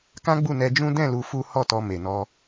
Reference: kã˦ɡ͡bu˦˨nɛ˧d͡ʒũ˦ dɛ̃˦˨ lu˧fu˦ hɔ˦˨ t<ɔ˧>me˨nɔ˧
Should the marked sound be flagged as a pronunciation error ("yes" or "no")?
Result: no